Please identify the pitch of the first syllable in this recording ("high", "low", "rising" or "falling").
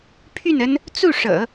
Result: falling